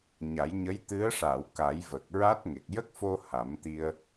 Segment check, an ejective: absent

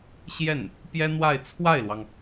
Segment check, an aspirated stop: present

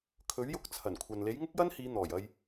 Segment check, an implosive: absent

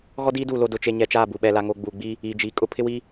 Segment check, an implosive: present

